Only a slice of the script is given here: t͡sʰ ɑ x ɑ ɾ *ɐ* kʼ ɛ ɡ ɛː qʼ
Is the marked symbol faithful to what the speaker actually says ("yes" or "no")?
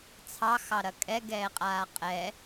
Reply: yes